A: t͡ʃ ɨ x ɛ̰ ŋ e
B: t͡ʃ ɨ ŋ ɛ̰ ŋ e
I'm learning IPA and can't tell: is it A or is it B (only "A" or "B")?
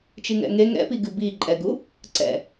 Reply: B